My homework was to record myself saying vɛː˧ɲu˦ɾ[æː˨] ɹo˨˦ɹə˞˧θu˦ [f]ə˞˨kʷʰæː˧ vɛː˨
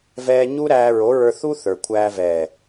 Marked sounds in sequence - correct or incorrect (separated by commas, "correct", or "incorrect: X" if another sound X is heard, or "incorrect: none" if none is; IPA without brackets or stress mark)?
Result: incorrect: æː˧, incorrect: θ